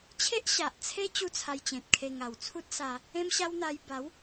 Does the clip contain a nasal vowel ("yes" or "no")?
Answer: yes